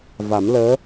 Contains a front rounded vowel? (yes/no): no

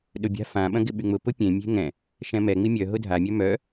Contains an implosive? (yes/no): yes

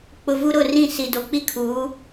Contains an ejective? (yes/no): no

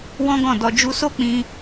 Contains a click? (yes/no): no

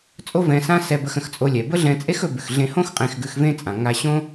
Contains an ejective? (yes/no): yes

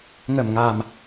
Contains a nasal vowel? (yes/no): no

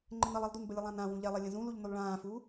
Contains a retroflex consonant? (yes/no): yes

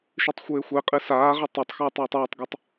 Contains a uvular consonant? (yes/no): yes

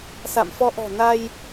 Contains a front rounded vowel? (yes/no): no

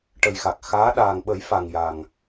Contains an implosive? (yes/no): yes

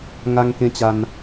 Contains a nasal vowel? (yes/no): yes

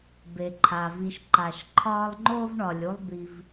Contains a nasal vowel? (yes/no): no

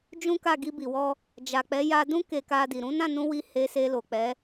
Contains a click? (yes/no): no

